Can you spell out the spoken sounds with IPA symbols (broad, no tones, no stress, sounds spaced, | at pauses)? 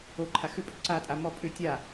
o ǃʰ a x ʏ pʼ ʏ ǀ a tʼ a m ɔ pʼ ʏ tʲ a